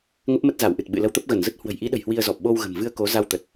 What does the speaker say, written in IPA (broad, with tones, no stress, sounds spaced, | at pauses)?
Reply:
ŋ ə˦˥ p̚ m ə˦˥ t̚ z a˧˩ w ʔ ɨ˨˩ t̚ ɓ ɨ̰˧˨ l ə˧ w t̪ ə˦˥ p̚ ɣ ə˧˩ n z ə˦˥ t̚ h w ə̤˨˩ j ʔ i˨˦ ɗ ə̤˨˩ j h w i˧ ə̯ z ɔ˨˩ p̚ ɓ o˧ w ɣ ə̤˨˩ m v ɨ˧ ə̯ k o˨˦ z a˧ w t̪ ə˨˩ t̚